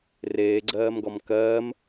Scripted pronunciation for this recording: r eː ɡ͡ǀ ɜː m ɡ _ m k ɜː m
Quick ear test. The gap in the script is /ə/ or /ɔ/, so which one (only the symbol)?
ɔ